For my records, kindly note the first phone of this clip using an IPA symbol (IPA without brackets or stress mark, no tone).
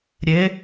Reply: ɾʲ